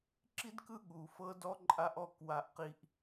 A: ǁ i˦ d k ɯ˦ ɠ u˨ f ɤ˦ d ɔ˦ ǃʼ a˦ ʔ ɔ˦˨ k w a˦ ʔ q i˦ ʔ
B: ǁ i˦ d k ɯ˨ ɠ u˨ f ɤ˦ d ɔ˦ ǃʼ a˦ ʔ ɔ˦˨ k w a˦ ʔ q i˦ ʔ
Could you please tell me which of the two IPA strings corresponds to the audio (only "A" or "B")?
A